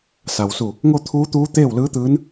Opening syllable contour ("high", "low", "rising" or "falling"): low